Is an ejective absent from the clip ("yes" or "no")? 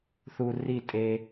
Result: no